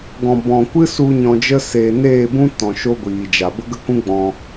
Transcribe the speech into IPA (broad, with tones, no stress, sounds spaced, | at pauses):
ɡ ɔ̃˨ b ɔ̃˨ kʷ ɨ˦ s u˧ ɲ ɔ̃˧ d͡ʒ ə˦ s eː˨ n eː˦˨ b ũ˦ t ɔ̃˨ ʃ o˦ ɡʷ iː˨ d͡ʒ a˨ b ə˦ ɡ ə˦ k ũ˦ ɡ͡b ɔ̃˧